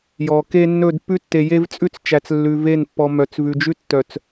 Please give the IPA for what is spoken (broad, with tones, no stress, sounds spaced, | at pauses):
j ɔ˨ k e˦ nː ɵ˦˨ d pː ʉ˦ tː e˨ j e˦ v t͡sʼ ʉ˦ t͡s t͡ʃ æ˨ t͡s lː ʉ˨ v e˦˨ n pː ɔ˨ m œ˨ t͡s v ʉ˨ d͡ʒ ʉ˦ tː œ˨ t͡s